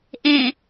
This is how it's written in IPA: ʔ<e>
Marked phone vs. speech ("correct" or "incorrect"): incorrect